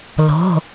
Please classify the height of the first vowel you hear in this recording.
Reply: mid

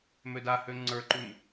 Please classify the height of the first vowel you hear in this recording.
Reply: mid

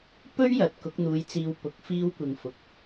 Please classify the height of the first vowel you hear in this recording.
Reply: mid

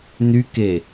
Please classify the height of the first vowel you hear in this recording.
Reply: high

